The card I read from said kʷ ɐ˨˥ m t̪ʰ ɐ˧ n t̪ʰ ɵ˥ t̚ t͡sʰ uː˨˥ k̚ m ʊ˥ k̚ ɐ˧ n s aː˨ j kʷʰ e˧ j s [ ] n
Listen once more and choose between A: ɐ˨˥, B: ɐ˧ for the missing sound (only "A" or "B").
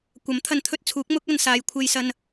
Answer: B